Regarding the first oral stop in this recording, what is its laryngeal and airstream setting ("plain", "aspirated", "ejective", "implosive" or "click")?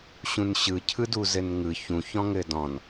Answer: aspirated